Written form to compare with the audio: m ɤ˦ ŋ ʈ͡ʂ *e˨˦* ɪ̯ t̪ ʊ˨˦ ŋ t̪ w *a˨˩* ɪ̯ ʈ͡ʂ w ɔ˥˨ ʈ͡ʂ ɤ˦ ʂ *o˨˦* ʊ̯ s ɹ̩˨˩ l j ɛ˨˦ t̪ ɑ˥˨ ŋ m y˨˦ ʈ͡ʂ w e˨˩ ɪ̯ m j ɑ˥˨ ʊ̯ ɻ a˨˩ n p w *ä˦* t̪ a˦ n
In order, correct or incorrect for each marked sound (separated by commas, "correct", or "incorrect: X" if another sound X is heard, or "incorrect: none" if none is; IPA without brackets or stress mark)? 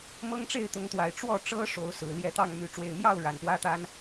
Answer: incorrect: e˥˨, correct, correct, correct